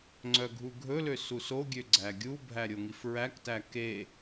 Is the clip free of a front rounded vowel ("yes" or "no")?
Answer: no